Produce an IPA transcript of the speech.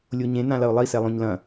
lʲ o ɲ ẽ n ã l ɐ ʊ̯ lˠ i s ɛ lˠ õ ɲ l ɐ̃

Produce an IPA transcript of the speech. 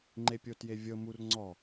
ŋ͡ǃ e pʲ o t j e vʲ ɤ m u r ŋ͡ǀ ɔ

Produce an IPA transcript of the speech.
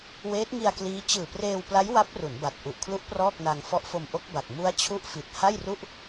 w eː˦˥ t̚ ŋ i˧ a̯ k l iː˦˥ t͡ɕ ɯː˨˩ p r eː˧ w p l a˦˥ j w a˦˥ p̚ r u˩˦ n b a˨˩ t̚ ʔ u˨˩ ʔ kʰ l u˦˥ ʔ p r ɔː˥˩ k̚ n a˧ ŋ f ɔ˦˥ ʔ f o˧ m ʔ o˦˥ k̚ b a˨˩ k̚ m u˦˥ a̯ t͡ɕʰ u˦˥ ʔ f i˨˩ t̚ h a˥˩ j r u˥˩ ʔ

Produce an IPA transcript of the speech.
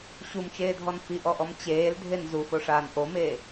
ɕ u m t͡ʃ eː dʱ ɔ n f i ʔ ɔ ʔ ɔ m t͡ɕ eː l dʱ e n z u f o ʂ aː n ʔ o m eː

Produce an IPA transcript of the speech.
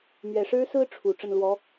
m ɥ ɛ˨˩ ʂ ɻ̩˥ s ɹ̩˥ ʈ͡ʂʰ u˨˩ ʈ͡ʂ ə˥˩ n l w ɔ˧˥

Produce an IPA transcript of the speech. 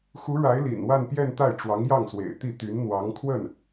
x u˧˥ ɻ a˧˥ ɪ̯ l ḭ˨˩ n w a˥˧ n p j ɛ˥˧ n t̪ a˥˩ ɪ̯ ʈ͡ʂ w ɑ˧˥ ŋ j ɑ˥˩ ŋ s w ḛ˨˩ ɪ̯ t̪ i˥˩ t̪ y˧˥ n n̪ w ɑ˧˥ ŋ kʰ w ə˥˩ n

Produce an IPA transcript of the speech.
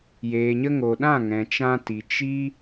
j eː˨ ɲ ə˧ ŋ o˨ ɗ ã˦˨ ŋ ɛ̃˨ t͡ʃ ã˧ t i˨ t͡ʃ i˦

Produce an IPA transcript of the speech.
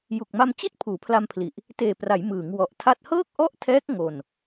j u˨˩ k̚ m a˧ m t͡ɕ i˥˩ t̚ pʰ uː˩˦ pʰ l a˧ m pʰ l i˨˩ ʔ | t eː˨˩ p r a˩˦ j m ɯː˩˦ ŋ w ɔ˨˩ ʔ tʰ a˥˩ t̚ h ɤː˥˩ k̚ ʔ ɔ˥˩ ʔ tʰ ɛː˦˥ k̚ ŋ o˧ n

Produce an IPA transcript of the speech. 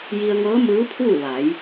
j i˧ ə̯ ŋ ɤː˧˥ m ɯː˧˥ pʰ uː˥˨ ʋ a˩˧ j

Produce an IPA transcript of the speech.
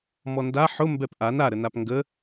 m ɔ n d a ħ ʊ m b ɛ p ʔ a n a ɾ ə n a p ŋ ɡ ə

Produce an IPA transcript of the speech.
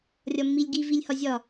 rʲ ɒ mː i lʲ ɡ i v i lʲ h ɒ zʲ ɒ

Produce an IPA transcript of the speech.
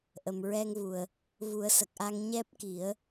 ʔ ə˨˩ m ɹ ɛ˧ ŋ v u˨˩ ə̯ | v u˨˩˦ ə̯ s ə˨˩ k̚ ʔ a˧ ŋ ɲ ɛ˦˥ p̚ k i˨˩˦ ə̯

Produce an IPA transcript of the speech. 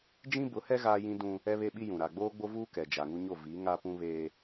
d͡ʒ ĩ˦ b ʊ˨˦ h ɛ˦ ɣ aː˦ j ĩ˦ d ũ˦ | ɛ˦ β e˦ ɓ i˦ j ũ˨ ɾ a˨ ɡ͡b oː˦ ɡ͡b o˦ v uː˦ k ɛ˨ d͡ʒ a˨ ŋ u˦ ɲ o˦˨ v i˨˦ ŋ a˦ p ũ˦ β eː˦

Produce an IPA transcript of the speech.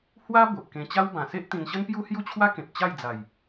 h w a˦ b o˨ ʔ k ẽ˧ t͡ɕ a˦ w b ã˨˩ s e˦ ʔ t̪ ĩ˧ n ɕ ə˦ n p j u˦ h j u˦ t͡ɕʰ w a˦ k ẽ˨ p̚ t͡ɕ a˥˧ j d͡z a˨˩ j

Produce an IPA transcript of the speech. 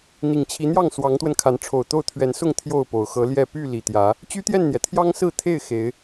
n̪ i˨˩ ŋ t͡ɕʰ i˨˦ n̪ j ɑ˥˨ ŋ s w ɑ˨˦ ŋ t̪ w ə˧ n kʰ a˨˦ n ʈ͡ʂʰ o˨˩ ʊ̯ t̪ o˥˨ ʊ̯ t̪ʰ ɥ ɛ˨˦ n s ʊ˥˨ ŋ t̪ʰ j o˥˨ ʊ̯ p o˨˩ ʊ̯ x ɤ˨˦ l j ɛ˥˨ p y˥˨ l i˨˩ t̪ j ä˨˦ | t͡ɕ y˦ t̪ j ɛ˥˨ n n̪ j ɛ˩ t̪ʰ j ɑ˦ ŋ s ɹ̩˥˨ t̪ʰ e˥˨ ɪ̯ x e˨˦ ɪ̯

